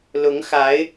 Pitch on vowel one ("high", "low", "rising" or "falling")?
rising